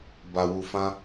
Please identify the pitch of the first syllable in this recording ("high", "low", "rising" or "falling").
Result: low